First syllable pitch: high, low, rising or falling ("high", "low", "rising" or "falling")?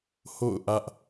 falling